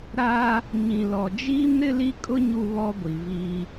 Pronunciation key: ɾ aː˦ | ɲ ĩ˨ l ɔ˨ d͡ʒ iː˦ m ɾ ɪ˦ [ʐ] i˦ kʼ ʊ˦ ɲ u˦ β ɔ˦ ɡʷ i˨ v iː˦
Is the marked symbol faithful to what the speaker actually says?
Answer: no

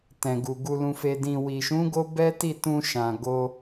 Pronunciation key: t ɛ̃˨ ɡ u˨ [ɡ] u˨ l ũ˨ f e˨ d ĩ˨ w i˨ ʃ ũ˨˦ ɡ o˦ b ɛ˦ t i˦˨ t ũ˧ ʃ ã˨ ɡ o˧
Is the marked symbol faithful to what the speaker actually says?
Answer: yes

